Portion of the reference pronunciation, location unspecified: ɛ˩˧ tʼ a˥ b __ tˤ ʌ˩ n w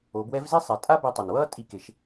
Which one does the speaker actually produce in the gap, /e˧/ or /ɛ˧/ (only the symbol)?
e˧